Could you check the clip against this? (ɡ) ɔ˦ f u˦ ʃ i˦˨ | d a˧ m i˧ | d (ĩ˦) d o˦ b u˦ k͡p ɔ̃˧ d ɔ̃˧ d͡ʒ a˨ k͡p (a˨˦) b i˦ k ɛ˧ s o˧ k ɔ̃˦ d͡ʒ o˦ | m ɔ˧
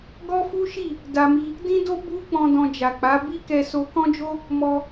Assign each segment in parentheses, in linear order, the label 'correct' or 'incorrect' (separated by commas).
correct, correct, correct